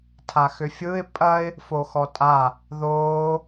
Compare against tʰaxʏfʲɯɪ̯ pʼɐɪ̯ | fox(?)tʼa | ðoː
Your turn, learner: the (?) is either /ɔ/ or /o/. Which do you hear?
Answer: ɔ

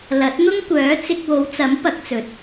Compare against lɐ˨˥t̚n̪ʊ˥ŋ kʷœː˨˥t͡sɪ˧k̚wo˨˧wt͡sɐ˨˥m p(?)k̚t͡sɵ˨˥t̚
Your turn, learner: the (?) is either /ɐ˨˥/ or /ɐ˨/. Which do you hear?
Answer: ɐ˨˥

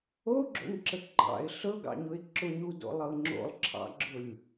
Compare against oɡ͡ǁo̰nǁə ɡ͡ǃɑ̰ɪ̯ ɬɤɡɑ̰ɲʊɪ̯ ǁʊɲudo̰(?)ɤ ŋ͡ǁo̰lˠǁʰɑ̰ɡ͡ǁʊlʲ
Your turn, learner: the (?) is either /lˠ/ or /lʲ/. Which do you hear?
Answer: lˠ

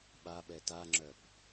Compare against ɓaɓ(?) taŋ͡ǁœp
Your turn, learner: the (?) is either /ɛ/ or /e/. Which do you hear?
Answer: ɛ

